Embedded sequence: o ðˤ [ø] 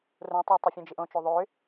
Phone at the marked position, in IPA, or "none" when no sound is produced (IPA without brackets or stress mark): ø